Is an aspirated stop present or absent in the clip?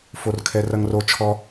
present